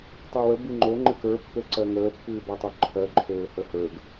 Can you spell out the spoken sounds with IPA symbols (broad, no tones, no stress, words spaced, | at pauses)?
tˤɜwə bɨŋ͡ǃo ŋ͡ǃɨkə˞ pːøǀɜŋəː pːɨːbatˤoǃʰɜ ǃʰøːhəhə˞ɡ